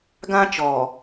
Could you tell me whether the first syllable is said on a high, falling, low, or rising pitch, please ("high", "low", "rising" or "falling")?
high